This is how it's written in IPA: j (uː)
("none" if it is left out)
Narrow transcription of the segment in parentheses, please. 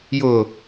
ʊː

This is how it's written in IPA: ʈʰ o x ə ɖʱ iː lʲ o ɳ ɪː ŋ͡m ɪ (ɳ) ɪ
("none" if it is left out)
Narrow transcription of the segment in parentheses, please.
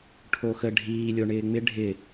ɖʱ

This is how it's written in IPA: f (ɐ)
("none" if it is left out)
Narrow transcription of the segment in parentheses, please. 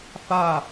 a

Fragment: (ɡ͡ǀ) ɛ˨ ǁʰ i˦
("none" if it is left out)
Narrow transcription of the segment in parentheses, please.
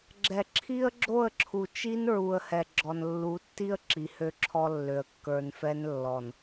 ɡ͡ǁ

